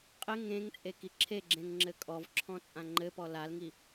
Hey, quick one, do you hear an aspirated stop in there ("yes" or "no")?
yes